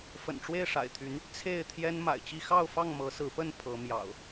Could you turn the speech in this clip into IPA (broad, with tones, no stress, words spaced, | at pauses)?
fə̰˨˩nʈ͡ʂwe˥˨ɪ̯ʂa̰˨˩ɪ̯t̪ʰy˨˦n | t͡sʰe˥˨ɪ̯t̪ʰjɛ˦n ma̰˨˩ɪ̯t͡ɕi˦ xɑ˥˨ʊ̯fɑ˥˨ŋ mɤ˨˦sɹ̩˨˦pə˥˨n pʰɤ˨˦mjɑ̰˨˩ʊ̯